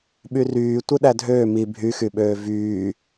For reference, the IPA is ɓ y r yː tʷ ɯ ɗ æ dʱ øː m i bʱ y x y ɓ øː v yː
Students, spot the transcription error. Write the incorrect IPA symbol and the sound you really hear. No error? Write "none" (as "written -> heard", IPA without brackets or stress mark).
none